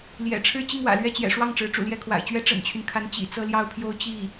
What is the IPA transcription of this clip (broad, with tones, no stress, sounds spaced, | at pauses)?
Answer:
l j ɛ̰˨˩ ʈ͡ʂʰ ɻ̩˥˧ t͡ɕ i˥˩ ŋ w ä̰˨˩ l ɥ ɛ˥˩ t͡ɕ j ɛ̰˨˩ ʂ w ɑ˥˩ ŋ ʈ͡ʂ ɻ̩˧˥ ʈ͡ʂ ṵ˨˩ l j ɛ˥˩ kʰ w a̰˨˩ ɪ̯ t͡ɕ ɥ ɛ˥ ʈ͡ʂ ə̰˨˩ n t͡ɕʰ y˦ n kʰ a˧˥ n t͡ɕ ḭ˨˩ t͡s ɤ˥˧ l j ɑ˥˧ ʊ̯ pʰ j o˥˧ ʊ̯ t͡ɕ i˥˩